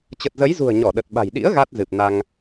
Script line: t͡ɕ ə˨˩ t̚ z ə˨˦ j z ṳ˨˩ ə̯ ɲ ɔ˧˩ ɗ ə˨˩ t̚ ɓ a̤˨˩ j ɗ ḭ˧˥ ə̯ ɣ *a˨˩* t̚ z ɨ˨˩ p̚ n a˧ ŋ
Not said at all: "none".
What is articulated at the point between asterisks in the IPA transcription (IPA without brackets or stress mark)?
a˦˥